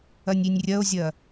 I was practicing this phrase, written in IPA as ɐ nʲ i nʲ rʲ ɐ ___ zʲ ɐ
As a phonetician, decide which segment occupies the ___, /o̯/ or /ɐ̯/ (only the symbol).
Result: o̯